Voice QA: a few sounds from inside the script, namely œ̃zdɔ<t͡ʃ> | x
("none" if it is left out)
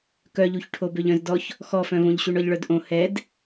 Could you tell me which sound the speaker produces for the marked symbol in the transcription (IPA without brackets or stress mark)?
ç